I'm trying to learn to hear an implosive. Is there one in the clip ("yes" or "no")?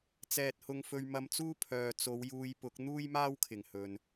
no